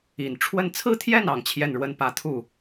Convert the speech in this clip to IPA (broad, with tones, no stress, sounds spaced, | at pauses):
i˨˩ n ʈ͡ʂʰ w ə˥˧ n t͡sʰ ɹ̩˥˧ t̪ʰ j ɛ˥˩ n ɑ˨˩ ŋ t͡ɕʰ j ɛ˥˩ n ɻ w ə˥ n p ä˧˥ t̪ʰ u˥˩